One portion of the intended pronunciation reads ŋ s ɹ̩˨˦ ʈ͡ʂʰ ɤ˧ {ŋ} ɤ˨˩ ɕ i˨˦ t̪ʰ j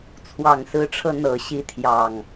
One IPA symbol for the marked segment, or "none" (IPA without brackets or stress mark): n̪